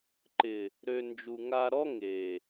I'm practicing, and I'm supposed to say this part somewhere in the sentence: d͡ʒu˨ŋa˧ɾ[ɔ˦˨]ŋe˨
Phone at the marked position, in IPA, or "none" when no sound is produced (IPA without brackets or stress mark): ɔ˦